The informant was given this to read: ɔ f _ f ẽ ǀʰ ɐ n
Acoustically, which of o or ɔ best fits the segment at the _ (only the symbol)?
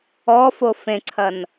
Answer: o